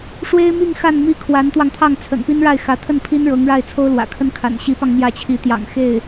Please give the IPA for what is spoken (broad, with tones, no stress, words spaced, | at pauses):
ʂwe˥ɪ̯mi˥˧ŋ xa˥˧nmi˥˩ kʰwa˧˥nt̪wɑ˧ŋt̪ʰɑ˥˩ŋ t͡sʰə̰˨˩npi˥nɻa˥˩ɪ̯ xä˧˥t̪ʰə˥˩npʰi˥n ɻɤ˧˥ŋɻa˥˩ɪ̯ t͡sʰo˥ʊ̯lwä̰˨˩kʰə˥n kʰa̰˨˩nɕi˧˥pɑ˧ŋ mjä˥˩t͡ɕʰi˧˥t̪jɑ̰˨˩ŋ xe˥˩ɪ̯